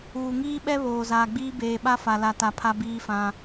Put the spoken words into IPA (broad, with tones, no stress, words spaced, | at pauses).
uː˨ŋiː˦ɓɛ˦ βoː˨zaː˨ɡ͡biː˦ beː˨ɓa˦ fa˨la˨ta˨ pʰa˦biː˦fã˦